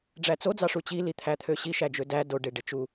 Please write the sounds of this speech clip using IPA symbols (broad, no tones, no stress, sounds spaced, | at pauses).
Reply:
ɖ͡ʐ æ t͡s o d͡z ɑ ʂ u t͡ɕ i l i t̪ʰ æ t̪ʰ ø ɕ i ʃ æ d͡ʒ ø d æ d o ɖ e ɖ e t͡ʃ u